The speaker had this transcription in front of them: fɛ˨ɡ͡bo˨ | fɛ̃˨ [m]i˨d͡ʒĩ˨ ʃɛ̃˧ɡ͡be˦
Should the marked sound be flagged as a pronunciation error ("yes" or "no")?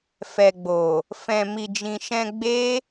no